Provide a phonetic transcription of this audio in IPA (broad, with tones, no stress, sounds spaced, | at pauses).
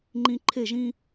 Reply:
ŋ͡ǃ ĩ˦ ǃʰ e˦˨ ʒ ĩ˦